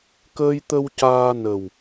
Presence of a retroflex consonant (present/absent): absent